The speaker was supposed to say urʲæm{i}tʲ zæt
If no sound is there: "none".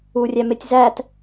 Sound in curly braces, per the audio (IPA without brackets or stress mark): e